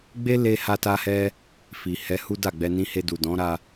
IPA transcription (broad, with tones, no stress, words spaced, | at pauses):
ɡ͡be˦ le˦ ha˦ta˦hɛ˦ | fi˨hɛ˨˦ hu˦da˦˨ɡ͡bɛ˧nĩ˦ he˧du˨dɔ̃˨˦ɾa˧